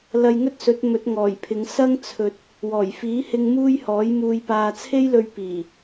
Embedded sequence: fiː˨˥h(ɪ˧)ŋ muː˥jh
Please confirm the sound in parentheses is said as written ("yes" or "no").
yes